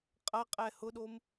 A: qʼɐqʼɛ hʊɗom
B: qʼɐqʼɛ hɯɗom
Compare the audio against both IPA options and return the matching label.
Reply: A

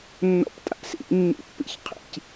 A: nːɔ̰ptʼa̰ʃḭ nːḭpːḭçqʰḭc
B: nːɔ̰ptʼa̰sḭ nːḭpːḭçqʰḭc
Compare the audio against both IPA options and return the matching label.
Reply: B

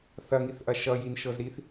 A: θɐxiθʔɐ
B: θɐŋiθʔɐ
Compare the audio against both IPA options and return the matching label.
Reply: B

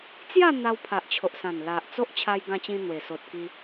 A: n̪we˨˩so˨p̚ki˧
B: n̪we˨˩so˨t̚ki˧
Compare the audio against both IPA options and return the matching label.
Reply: B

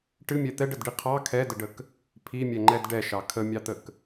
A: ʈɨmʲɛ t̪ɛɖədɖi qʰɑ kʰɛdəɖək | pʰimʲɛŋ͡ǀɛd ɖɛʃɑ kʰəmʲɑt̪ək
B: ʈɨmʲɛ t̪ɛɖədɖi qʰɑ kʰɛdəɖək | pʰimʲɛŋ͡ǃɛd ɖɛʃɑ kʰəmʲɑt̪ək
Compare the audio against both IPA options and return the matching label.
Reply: B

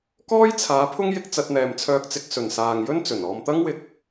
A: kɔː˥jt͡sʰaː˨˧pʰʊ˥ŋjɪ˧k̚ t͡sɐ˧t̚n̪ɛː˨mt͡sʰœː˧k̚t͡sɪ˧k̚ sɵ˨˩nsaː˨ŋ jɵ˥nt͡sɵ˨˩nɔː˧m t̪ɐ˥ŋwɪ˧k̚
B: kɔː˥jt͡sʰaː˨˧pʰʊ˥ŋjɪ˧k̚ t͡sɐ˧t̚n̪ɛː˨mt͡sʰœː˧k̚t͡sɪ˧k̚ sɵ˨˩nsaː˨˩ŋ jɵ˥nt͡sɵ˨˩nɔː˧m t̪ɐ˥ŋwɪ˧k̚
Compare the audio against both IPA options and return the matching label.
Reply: A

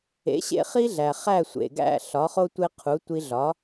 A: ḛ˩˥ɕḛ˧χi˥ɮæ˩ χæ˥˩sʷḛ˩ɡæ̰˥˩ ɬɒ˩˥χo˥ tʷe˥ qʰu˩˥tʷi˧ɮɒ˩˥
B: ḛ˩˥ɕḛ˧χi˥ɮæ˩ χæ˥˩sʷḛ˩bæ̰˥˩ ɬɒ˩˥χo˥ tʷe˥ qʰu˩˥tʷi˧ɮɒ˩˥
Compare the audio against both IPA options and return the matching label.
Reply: A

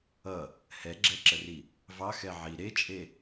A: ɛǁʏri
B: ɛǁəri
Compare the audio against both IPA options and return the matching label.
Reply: B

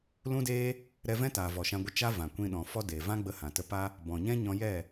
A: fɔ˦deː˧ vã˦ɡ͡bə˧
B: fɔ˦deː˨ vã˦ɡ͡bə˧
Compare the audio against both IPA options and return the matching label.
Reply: B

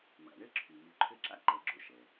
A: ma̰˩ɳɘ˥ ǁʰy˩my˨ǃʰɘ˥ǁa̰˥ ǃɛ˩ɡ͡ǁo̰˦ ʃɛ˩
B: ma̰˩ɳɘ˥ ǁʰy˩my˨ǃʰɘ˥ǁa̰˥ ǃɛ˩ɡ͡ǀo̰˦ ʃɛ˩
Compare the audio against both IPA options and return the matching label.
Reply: A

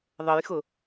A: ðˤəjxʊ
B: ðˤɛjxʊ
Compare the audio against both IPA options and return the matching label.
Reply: A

